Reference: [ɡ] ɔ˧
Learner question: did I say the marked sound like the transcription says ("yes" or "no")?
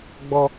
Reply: no